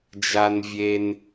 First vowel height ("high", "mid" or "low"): low